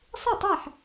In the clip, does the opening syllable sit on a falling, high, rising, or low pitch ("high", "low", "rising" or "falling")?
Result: falling